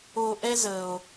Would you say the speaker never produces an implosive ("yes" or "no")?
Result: yes